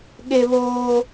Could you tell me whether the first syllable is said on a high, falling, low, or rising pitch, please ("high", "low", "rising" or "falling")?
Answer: high